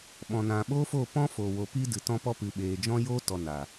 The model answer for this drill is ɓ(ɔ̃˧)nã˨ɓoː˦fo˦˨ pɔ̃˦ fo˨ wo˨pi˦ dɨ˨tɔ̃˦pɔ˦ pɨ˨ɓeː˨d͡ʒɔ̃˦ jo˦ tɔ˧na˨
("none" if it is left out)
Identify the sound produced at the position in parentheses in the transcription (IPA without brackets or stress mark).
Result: ɔ̃˨